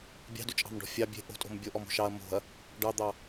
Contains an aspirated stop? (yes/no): no